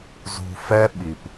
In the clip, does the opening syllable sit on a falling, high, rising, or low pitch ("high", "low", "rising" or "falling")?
low